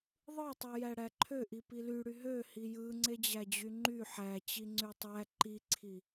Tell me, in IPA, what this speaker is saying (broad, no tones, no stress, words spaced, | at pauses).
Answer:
ðˤɯtˤujæ ɽæǃʰøʔi pilyɽy ɦøhi jɯŋ͡ǀed͡ʑæd͡ʑy ŋ͡ǃy ħæt͡ɕi ŋ͡ǀytˤæ ǃiǀʰi